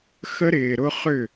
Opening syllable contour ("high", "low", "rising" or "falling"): high